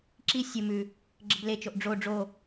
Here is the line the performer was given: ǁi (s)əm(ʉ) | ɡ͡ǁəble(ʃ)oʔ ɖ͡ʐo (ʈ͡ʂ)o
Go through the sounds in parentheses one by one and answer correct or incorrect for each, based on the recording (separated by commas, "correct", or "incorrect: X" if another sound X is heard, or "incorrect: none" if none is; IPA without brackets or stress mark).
incorrect: sʲ, correct, incorrect: t͡ʃ, incorrect: ɖ͡ʐ